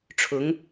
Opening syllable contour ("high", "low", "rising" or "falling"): rising